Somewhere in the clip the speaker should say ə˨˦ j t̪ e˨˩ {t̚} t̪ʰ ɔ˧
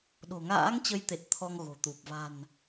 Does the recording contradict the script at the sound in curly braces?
no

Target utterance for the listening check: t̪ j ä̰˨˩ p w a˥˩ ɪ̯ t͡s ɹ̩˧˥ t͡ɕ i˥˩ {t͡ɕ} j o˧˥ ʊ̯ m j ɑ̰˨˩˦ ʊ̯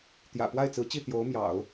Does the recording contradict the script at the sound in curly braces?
yes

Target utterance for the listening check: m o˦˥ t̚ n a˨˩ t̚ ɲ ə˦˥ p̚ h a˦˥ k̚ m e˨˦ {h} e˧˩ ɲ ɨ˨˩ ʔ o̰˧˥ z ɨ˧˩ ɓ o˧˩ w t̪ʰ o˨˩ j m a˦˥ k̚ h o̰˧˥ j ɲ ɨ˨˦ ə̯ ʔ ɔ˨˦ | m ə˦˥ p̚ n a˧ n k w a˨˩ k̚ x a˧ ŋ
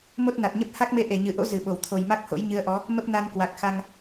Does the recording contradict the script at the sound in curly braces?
yes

